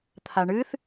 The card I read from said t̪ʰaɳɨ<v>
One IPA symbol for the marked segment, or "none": θ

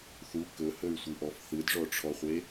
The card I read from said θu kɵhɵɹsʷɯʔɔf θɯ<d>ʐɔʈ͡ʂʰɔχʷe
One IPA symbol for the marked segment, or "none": d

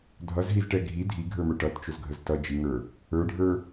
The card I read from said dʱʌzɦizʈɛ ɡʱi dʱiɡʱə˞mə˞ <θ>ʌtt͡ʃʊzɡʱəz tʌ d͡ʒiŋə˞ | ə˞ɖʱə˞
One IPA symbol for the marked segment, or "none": ʈ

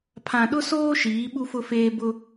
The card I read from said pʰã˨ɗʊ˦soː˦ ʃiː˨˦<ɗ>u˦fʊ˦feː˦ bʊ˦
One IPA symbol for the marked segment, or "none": ɓ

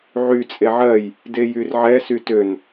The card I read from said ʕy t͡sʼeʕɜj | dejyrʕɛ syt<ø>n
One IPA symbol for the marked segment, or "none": ø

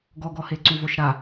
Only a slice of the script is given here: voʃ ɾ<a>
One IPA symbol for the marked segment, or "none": a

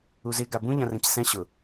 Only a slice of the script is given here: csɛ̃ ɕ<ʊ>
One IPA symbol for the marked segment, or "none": ʊ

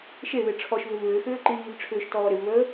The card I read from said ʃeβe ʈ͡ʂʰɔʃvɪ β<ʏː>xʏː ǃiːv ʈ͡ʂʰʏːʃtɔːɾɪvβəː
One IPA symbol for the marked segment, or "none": ʏː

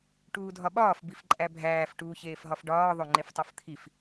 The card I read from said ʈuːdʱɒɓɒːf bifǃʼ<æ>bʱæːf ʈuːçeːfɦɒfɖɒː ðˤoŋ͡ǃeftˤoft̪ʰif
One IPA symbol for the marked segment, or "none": æ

